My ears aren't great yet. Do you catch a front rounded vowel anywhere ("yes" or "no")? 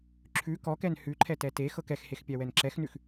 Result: no